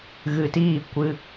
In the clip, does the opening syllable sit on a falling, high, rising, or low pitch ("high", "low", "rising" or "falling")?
low